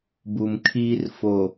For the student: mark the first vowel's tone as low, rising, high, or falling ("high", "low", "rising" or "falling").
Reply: low